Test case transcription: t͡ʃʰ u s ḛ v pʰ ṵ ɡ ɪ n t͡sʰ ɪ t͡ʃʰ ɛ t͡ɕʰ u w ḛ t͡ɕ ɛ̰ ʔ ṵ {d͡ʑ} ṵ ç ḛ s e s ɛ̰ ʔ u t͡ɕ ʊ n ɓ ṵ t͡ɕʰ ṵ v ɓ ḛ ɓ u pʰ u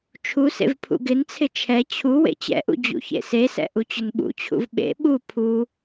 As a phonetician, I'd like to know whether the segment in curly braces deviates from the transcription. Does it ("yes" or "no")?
no